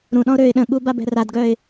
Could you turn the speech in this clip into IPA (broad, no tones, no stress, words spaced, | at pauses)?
ɾũɗɔ̃ʊ̯ ɾøɪ̯ ɗə̃ɠu babɛ̤radɡœɪ̯